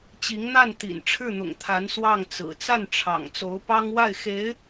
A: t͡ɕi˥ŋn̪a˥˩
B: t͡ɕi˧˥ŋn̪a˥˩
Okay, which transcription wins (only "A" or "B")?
B